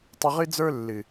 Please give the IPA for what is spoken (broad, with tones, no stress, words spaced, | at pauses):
tˤɨ˧ʁɨ˦ d͡zə˞˦ lːɨ˨